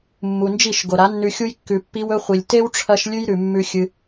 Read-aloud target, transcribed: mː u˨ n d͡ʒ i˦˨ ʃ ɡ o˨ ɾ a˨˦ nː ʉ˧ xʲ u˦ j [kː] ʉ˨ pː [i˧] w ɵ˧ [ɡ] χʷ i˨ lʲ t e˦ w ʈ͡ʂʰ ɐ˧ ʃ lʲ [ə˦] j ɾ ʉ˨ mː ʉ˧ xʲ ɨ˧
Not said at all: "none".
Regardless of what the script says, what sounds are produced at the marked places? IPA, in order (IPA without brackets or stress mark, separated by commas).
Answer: kː, i˧, none, ʉ˦